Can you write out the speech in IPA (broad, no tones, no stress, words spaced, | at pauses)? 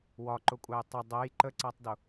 wɒǃʊkʷʼæj tˤə dˤɛj ǃəǀætˤdʊ